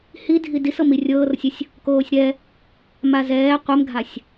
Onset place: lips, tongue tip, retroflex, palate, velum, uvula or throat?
throat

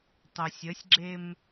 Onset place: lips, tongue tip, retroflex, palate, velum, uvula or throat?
tongue tip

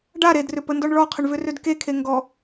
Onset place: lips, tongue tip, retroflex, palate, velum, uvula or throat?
retroflex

